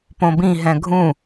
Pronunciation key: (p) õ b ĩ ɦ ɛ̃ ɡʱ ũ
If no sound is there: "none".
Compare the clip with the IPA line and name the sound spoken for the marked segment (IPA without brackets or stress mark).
p